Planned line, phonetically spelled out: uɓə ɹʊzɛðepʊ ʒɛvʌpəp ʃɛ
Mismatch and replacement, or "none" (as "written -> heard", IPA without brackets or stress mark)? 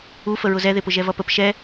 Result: ɓ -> f